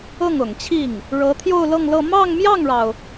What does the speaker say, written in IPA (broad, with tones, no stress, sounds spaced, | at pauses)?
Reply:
ɤ˥˩ ŋ ʊ˨˩ ŋ t͡ɕʰ i˥˩ ŋ | ɻ ɤ˧˥ t̪ʰ j o˥˧ ʊ̯ l ɤ˥˧ ŋ l ɤ˥˧ m ɑ˥˧ ŋ m j ɑ˥˩ ŋ ɻ ɑ˩ ʊ̯